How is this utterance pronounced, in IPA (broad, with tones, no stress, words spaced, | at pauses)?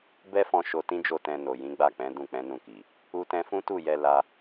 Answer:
bɛ˦fɔ̃˧ ʃo˧tĩ˦d͡ʒo˦˨ tɛ̃˧no˨jĩ˨˦ ɡ͡ba˦˨k͡pɛ̃˨˦ dũ˦˨k͡pɛ̃˨˦nũ˦˨ki˨ | u˧tɛ̃˧fũ˦tu˦˨ jɛ˧la˧